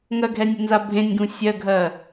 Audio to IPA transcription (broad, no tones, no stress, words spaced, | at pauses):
ŋɜɡʱɛnʲunza bʱẽnʲɡũ sʲɜɡʱɜ